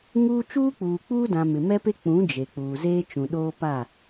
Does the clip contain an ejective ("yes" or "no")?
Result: no